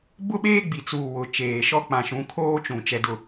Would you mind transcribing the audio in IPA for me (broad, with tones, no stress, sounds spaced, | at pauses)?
b ʊ˦ ɓ eː˦ ɡ͡b i˨ t͡s uː˨ w ʊ˨ t͡ʃ eː˨ ʃ ɔ˦ k͡p ã˨ ʃ ũ˨˦ kʰ oː˦ t͡ʃ ũ˨ t͡ʃ ɛ˦ d ʊ˦